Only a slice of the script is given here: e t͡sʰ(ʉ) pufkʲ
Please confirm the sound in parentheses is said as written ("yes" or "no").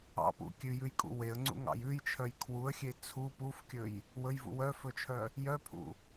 no